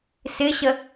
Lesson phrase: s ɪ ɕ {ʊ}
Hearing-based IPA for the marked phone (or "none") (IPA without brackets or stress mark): ə